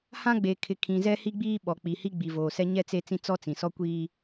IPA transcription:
hã˦ɡ͡be˨kʰɪ˨ kʰĩ˨ zɛ˦hi˦ɡ͡biː˦ ɓɔ˨k͡pi˨ hi˦ɡ͡bi˨voː˨sɛ˦ ɲɛ˦t͡se˦ t͡sĩ˦ t͡sɔ˦t͡sĩ˨ sɔ˦kʷiː˦

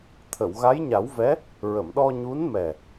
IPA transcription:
t̪ʰə˨˩˨wɣa˧˥jɲa˨˩˦wvɛ˧˥ | ɹə˨˩˨mɗɔ˧ ɲu˧˥nmɛ˨˩

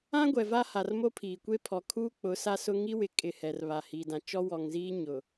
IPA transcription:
ã˦ɡʷɛ˨va˦ ha˨rmo˦pʰiː˨ kʷe˦pʰɔ˨ kʰuː˦k͡pʊ˨˦ sa˦sʊ˦ ŋi˦wɪ˨ kʼɪ˨ hɛ˨rβa˨ hiː˨dã˨ t͡ʃɔ˦ wɔ˨ŋziː˦ ɲʊ˨

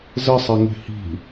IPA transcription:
zɘsˤɘ ŋe̤hi̤

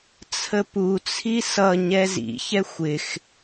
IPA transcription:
t͡sʰəput͡sʰi sʌ ɲɛzḭçɛ xʷɪx

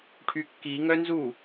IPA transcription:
ʈʰykːi ŋœnzu

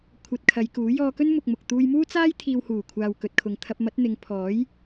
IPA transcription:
kʷʰɐ˧t̚kʰɐ˨˧jkuː˨˥ jɔː˧kɵ˥n mʊ˧k̚mʊ˨k̚ t̪uː˧jmuː˥t͡saː˥j t̪ʰiː˧whuː˨˩kʷʰaː˨w kɵ˨t̚kʰʊ˨ŋ t̪ʰɐ˧p̚mɐ˨˥t̚n̪ɪ˨˧ŋ pʰɔː˨˥j

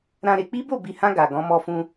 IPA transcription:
ɾã˦ɾe˧ k͡pi˦bo˦˨bi˨hã˧ ɡa˨ɡɔ̃˨˦ mɔ˧fũ˧

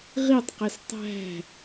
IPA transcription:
ʁitˤqes tˤæ̤

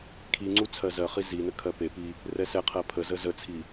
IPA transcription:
kʰiŋ͡ǀu t͡sʰɜzɜχi zinə kʰɜpepi | rɛsɛqʰɜ pʰəzə zət͡sʰi

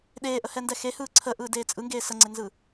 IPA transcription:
ɗeːʔəhɛndɛ xehɯː ǀʰəʔɯːdeː t͡sʼɯŋɡeː səŋ͡ǀenzɯː

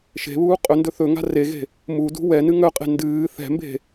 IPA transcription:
ʃe̤βuː qʼɵndɵ θɵŋa̤ reɣe̤ | mudṳ wɛnɨ ŋœqʼe̤ ndɨː θɛ̤mbe̤

